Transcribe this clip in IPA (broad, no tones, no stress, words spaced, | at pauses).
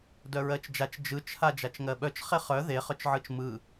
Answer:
dœɹɜt͡ʃd͡ʒat͡ʃ d͡ʒɯt͡ʃ had͡ʒat͡ʃŋɜɓœt͡ʃ χeχœ ðe χœt͡ʃʕɯt͡ʃmɯ